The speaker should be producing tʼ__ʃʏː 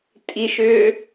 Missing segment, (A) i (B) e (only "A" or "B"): A